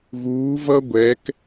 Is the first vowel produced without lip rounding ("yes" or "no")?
no